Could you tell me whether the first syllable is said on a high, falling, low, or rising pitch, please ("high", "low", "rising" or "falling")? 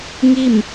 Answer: falling